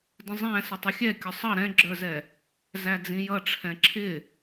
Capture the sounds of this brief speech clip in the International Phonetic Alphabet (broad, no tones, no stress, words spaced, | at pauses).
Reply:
də̃zˤæ̃ sətˤʊxʲɛ kʲʊsˤʌ ɾɛ̃ɡ͡ǁə˞zɛ | zæd͡zĩjʌ ʈ͡ʂʰɛ̃ǁʰɪ